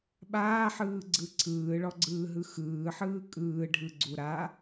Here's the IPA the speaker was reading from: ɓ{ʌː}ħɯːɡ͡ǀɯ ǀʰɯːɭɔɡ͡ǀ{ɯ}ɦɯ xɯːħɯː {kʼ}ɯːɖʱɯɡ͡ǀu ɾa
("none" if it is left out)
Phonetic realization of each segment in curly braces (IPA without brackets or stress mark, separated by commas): aː, ɯː, kʼ